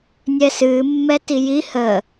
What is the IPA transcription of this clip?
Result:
nʲ ɛ s ɨː mː ɛ t i j i h ə

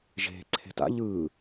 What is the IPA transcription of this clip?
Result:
ʒ e̤ ǀʰ e̤ t a̰ ʎ ɯː

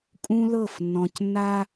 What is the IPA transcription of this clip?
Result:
kʼ ũ˦ l ɤ˦˨ f nː ɔ̃˨ c nː a˦

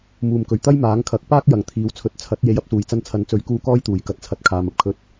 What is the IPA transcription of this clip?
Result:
m uː˨˩ m k ɵ˨˩ ɥ t̪ ɐ˥ j m aː˨˥ ŋ kʰ ɐ˨˥ k̚ p aː˥ k̚ j ɐ˨ ŋ t̪ʰ iː˨˥ w t͡sʰ ɵ˨˥ t̚ t͡sʰ ɐ˨˥ t̚ j e˨˧ j ɐ˧ p̚ s uː˨˩ j t͡s ɐ˧ n t͡sʰ ɐ˨˥ n t͡s ɵ˨˥ ɥ k uː˧ k ɔː˥ j t̪ uː˨˩ j k ɐ˧ t̚ t͡sʰ ɐ˧ t̚ kʰ aː˨ m ɐ˧ p̚ kʰ ɵ˨˥ t̚

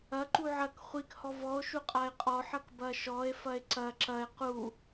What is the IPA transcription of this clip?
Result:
ɐ ǃ u ʕ ɐ k χʷ i k h ɔ v ɔ o̯ ʃ u qʼ a e̯ qʼ ɔ ħ ɐ k b ɐ ʃ ɔ e̯ f ɐ e̯ ǀ ɐ ǁ ɐ e̯ q u

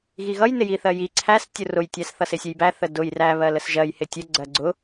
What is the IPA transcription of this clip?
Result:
ɣ i ɣ ʌ j n ɪ j i θ ɜ j i ǀʰ æ s tʲ ʊ r ʊ j tʲ æ s θ ʌ s ɪ sʲ ə j b æ θ ə d ʊ j r æ β ɜ l ə s ʒ ɜ j h ɪ tʲ ə ɡ͡ǀ ɜ ɡ͡ǀ ʊ

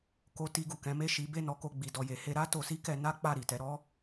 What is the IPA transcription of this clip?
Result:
k o˧ t i˧ ɡ u˨ k ɛ̃˨˦ m e˦˨ ʃ i˨˦ b e˦˨ n ɔ˨˦ k o˧ ɡ͡b i˧ d ɔ˧ j e˧ h e˦ ɾ a˦ t o˧ s i˦ k ɛ˧ n a˦ k͡p a˦˨ ɾ i˨ t ɛ˨˦ ɾ ɔ˦

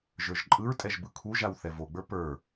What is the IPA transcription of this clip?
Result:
ʒ ə˞ ʒ ǃʼ ɯ ɹ tʼ ɛ ʒ b ɯ kʰ u ʒ a w θ ɛ v o ɡ͡b ə˞ p ə˞

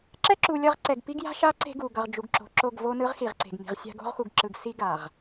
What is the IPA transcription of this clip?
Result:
ǁ ɛ˦ ǁ u˨ lʲ ʌ˦˨ ʁ ǀ ɛ˨ ɡ p i˦ ɡ j a̤˦ ʃ a˦ ǀ e̤˦ ɡ u˨ ɡ ʌ˨ ʁ d͡ʒ u˨ ɡ ǁ o̤˨ ǁ o˦˨ ɡ v o˦ n ɯ˦ ʁ x i˨ ʁ ǀ e̤˨ ɡ m i̤˨ ʁ sʲ a̤˦ ɡ o̤˦ ʁ x u˨ ɡ ǁ ɯ˨ ɡ s i˦ ɡ a˨ ʁ

